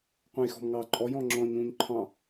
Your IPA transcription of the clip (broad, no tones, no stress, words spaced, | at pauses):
qʷɛ̃jxɔ̤mŋɑːǃʼɔj ɔ̃ŋ͡ǁɔ̃ɲ ũːɲǃʰɑ̃